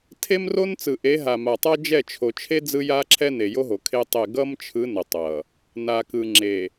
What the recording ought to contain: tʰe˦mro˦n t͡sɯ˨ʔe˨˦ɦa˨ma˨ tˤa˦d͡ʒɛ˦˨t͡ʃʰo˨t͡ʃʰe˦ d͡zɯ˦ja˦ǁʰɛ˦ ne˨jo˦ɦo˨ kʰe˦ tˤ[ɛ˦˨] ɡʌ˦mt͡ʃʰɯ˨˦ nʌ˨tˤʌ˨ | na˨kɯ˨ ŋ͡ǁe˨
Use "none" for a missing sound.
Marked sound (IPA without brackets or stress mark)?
ɛ˦˨